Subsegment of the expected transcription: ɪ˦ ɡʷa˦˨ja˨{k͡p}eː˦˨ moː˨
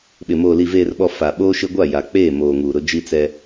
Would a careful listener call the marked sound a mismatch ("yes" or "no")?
no